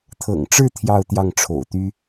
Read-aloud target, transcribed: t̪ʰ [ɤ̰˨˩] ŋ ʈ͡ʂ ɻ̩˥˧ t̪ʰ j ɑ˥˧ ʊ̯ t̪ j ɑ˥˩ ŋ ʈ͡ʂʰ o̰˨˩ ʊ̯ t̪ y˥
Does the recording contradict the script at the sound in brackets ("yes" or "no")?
no